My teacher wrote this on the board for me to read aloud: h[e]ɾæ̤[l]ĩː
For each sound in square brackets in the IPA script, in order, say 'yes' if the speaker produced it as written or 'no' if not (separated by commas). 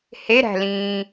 yes, yes